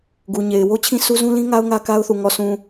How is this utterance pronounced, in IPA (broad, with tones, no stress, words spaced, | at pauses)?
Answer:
ɡu˨ɲe˨ɪ̯ wo˦t͡ɕʰĩ˦sʰu˦ zũ˦lĩ˦ŋa˦ʊ̯ ŋä˦ka˦ʊ̯θu˨ ŋɔ˨sʰũ˨